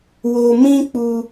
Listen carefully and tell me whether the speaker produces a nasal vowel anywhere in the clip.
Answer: yes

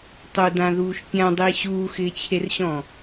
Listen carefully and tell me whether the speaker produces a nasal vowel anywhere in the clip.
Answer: yes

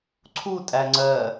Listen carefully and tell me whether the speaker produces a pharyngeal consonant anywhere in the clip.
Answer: no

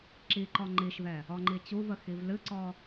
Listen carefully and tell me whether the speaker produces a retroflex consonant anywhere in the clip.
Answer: no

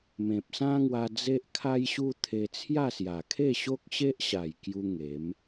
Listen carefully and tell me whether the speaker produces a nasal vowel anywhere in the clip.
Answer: yes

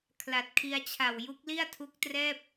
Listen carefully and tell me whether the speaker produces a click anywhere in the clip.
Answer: no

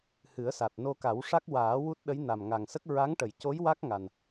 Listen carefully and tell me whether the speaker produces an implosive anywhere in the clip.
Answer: yes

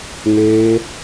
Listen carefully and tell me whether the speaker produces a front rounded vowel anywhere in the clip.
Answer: no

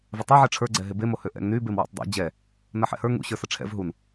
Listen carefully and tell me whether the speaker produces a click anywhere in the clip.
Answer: yes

